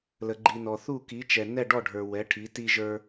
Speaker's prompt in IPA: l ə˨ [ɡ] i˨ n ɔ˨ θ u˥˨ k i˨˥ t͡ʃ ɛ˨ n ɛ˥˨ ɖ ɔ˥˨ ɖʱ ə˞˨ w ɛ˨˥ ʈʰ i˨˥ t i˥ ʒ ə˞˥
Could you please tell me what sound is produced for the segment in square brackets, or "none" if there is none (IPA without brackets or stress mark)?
ɡ͡ǃ